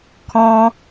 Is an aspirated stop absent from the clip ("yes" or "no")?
no